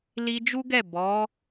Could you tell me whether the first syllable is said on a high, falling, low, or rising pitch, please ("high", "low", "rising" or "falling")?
high